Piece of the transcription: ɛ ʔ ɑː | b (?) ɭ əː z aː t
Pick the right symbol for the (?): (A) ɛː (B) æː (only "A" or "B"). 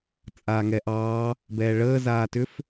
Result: A